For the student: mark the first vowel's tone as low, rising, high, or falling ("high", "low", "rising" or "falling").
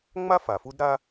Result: high